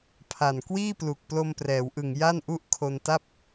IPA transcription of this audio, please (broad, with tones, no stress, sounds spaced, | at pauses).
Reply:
pʰ a˨˩ n k w iː˥˩ p l u˨˩ k̚ p l o˧ m p r ɛː˩˦ w ʔ ɯ˨˩ ŋ j a˥˩ n ʔ u˦˥ ʔ kʰ o˧ n t a˥˩ p̚